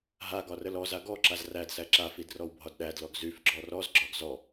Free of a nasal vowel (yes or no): yes